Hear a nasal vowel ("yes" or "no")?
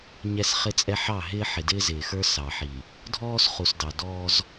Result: no